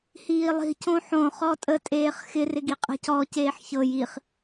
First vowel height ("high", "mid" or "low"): high